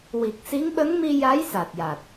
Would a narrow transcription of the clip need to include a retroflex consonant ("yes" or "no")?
no